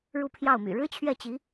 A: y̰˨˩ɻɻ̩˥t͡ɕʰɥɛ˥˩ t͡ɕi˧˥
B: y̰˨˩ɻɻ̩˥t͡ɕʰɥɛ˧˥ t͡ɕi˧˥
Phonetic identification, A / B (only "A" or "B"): A